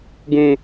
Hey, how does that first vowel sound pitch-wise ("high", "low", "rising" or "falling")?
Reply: high